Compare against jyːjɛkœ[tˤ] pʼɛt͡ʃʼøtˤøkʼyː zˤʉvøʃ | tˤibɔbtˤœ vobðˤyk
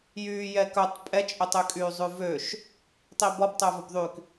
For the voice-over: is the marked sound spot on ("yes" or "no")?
yes